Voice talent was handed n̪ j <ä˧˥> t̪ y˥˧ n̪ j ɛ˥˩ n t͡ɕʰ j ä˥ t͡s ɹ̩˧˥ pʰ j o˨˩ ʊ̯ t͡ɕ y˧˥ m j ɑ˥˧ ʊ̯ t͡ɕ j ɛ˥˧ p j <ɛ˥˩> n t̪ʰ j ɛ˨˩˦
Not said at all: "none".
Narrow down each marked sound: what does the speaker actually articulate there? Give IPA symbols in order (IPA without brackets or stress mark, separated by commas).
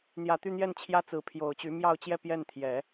ä˨˩, ɛ˥˩